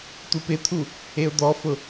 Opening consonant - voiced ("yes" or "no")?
no